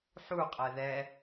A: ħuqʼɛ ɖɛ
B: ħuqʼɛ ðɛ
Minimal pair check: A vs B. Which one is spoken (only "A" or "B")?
B